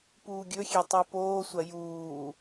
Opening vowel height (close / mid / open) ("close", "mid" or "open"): close